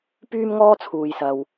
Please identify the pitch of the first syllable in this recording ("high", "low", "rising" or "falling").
high